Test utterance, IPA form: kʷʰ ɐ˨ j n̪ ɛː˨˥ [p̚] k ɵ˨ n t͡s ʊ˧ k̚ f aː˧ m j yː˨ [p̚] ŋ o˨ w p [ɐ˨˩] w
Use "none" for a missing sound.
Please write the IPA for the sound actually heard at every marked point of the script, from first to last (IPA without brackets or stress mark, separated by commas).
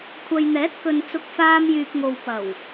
t̚, p̚, ɐ˨˩